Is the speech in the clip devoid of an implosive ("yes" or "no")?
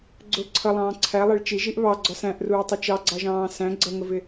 yes